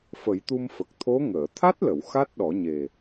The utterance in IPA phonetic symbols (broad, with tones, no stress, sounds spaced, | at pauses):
f ə˨˩˦ j t̪ u˧ m f ə˨˩ k̚ t̪ʰ o˧˥ ŋ əː˨˩˨ t̪ʰ a˦˥ t̚ l ə˨˩˨ w x a˦˥ t̚ ɗ ɔ˨˩˦ ɲ e˨˩